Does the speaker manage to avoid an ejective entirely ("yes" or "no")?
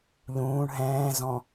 yes